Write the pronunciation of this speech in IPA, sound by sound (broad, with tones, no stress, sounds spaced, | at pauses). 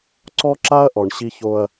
ǀ ɔ˦ ǁ a˦ ɐ̯ ʔ ɔ˨ ɳ ɕ i˦ ç o˦ ɐ̯